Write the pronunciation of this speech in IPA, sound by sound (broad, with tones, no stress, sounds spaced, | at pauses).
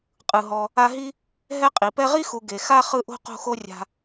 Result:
qʼ ɯ˩ ɦ ɔ˨ | a˦ ɦ i˥ | ɦ ɛ˥ qʼ i˩ p ɛ˦ ʁ i˥ x u˨ ɡ e˩ x a˦ χ ɯ˦ ʔ o̤˥ q o̤˦ x o˦ rʲ a̤˨